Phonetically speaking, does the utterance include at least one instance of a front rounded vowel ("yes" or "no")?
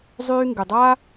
yes